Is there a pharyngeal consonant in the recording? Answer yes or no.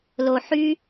yes